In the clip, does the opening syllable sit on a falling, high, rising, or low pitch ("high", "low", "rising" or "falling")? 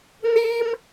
high